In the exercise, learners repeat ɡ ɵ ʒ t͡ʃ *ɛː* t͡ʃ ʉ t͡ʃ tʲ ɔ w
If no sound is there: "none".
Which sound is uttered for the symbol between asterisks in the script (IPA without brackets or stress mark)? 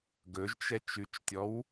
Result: ɛ